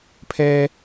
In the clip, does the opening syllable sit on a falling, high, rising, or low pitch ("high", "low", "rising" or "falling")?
high